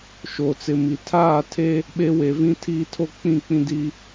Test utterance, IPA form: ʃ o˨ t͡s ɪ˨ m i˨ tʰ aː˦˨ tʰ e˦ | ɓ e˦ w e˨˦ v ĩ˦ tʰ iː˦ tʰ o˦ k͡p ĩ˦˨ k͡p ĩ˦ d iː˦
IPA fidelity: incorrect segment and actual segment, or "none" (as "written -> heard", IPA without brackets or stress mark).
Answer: none